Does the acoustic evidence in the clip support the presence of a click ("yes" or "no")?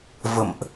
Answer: no